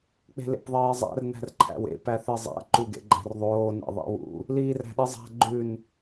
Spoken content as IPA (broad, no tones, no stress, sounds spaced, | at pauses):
k͡p e̤ l ḛ p ðˤ eː zˤ æ̰ r n æ̤ r ǃʰ æ̰ w ḛ p æ θ e zˤ æ̰ ǃ u ɡ ḛ ɡ͡ǃ æ̤ r ðˤ oː n ḛ ðˤ ḭ w ṵ | l iː r æ̤ ɗ i zˤ æ̤ ɡ͡ǃ ʉ n